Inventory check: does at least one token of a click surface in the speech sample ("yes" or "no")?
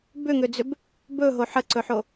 yes